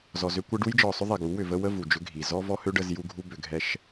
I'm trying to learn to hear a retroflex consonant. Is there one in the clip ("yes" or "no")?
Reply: yes